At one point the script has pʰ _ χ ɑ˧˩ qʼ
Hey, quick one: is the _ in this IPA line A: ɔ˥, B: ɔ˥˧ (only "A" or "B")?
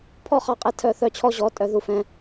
B